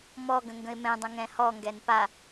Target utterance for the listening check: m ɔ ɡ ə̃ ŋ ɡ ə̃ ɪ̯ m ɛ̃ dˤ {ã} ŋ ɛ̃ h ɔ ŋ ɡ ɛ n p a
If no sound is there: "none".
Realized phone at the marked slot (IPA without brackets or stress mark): ə̃